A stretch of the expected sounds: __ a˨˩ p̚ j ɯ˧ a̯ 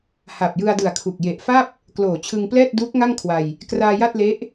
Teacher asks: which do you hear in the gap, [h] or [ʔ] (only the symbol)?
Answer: h